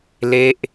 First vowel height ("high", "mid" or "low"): mid